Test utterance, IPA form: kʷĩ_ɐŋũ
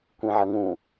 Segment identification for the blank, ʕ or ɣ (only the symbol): ʕ